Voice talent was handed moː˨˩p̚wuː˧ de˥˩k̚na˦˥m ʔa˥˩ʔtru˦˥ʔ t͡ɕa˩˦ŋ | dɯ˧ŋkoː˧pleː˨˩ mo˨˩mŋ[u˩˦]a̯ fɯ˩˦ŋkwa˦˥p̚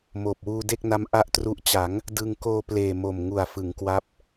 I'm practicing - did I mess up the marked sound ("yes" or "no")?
yes